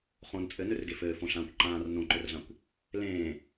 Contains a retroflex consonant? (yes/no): no